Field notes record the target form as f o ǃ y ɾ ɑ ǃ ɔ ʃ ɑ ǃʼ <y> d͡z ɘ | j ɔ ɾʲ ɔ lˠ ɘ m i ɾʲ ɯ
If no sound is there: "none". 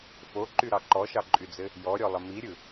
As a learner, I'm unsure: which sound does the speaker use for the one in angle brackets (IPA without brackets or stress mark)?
y